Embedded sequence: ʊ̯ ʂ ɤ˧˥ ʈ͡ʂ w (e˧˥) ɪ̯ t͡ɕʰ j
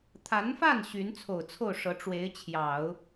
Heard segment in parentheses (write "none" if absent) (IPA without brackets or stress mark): e˧˥